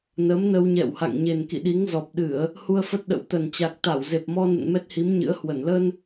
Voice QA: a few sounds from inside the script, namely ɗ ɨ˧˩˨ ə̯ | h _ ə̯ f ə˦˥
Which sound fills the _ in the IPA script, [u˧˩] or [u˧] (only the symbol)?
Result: u˧